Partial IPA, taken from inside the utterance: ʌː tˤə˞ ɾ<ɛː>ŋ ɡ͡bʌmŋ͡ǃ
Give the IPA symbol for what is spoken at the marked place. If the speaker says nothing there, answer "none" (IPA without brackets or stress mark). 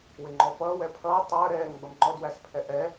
ɛː